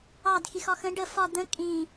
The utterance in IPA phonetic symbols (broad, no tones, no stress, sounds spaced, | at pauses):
ɑ d x i x ɒ x ə̃ ɖ ə f ɒ d̪ ə̃ kʼ ĩ